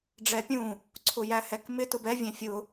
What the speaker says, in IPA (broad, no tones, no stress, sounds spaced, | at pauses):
ɖ͡ʐ ɛ pʲ ũ | ǀʰ ʊ j æ h ɛ k m ɪ t ʊ b ɛ vʲ ɛ̃ fʲ ʊ